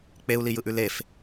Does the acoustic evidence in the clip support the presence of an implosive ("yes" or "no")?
no